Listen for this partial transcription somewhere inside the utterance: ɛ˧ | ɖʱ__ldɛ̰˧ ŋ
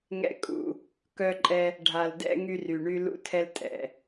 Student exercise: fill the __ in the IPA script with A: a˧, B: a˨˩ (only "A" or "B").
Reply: B